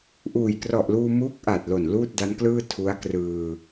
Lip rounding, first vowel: rounded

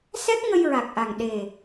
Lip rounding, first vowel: unrounded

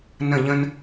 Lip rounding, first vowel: unrounded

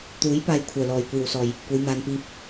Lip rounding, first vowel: rounded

